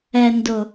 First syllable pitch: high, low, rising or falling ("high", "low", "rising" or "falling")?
low